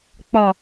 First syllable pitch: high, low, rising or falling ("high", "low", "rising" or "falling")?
low